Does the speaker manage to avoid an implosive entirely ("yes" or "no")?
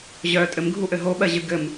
no